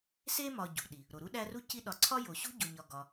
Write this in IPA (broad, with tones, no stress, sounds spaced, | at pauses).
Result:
s e˥ m ɒ˨ ɟ ṳ˩ ɗ i˩ | ɾ o˩ ɾ u˥ ɗ æ˦ r u˥ c i˦ ɗ ɒ˨ ǀʰ ɒ˥ j o˨ ɕ ṳ˥ ɟ o˨ ɲ ɒ˨ ɡ ɒ˨